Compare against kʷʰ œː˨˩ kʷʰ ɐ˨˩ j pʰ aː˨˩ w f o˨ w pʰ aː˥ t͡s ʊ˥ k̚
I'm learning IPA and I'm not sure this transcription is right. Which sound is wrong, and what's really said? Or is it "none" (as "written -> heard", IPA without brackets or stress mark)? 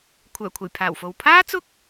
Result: none